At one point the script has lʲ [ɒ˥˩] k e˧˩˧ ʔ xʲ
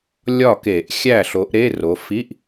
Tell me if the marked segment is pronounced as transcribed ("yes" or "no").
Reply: yes